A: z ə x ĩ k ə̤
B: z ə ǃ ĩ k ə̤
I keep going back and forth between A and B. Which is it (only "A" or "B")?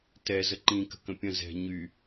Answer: B